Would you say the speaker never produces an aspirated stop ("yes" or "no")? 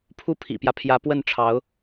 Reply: no